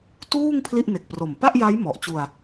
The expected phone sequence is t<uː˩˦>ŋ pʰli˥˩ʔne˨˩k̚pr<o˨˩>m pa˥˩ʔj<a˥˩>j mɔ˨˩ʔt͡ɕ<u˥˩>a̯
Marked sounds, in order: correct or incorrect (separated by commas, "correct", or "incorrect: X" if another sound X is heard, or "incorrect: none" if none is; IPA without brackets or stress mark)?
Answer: incorrect: uː˥˩, correct, incorrect: a˦˥, incorrect: u˧